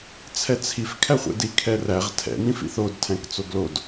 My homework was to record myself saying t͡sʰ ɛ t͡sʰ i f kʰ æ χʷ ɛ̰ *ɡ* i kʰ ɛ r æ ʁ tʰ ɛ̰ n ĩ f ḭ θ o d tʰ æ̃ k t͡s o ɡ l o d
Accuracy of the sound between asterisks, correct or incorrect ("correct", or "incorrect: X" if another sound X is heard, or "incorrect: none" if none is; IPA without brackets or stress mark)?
incorrect: d